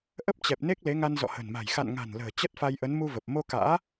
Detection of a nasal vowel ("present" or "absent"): absent